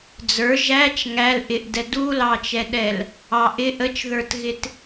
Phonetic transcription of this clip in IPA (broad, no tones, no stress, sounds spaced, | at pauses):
d͡z ə˞ ʒ æ t͡ʃ ŋ æ l ʔ ɪ ʔ d ɛ d u l ɑ t͡ʃ ɛ ɗ ɛ l | ɑ ʔ ɪ ʔ ə t͡ʃ ð ə˞ t ɣ ɪ t